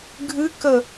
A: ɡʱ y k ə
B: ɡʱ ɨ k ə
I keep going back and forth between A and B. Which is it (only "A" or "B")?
B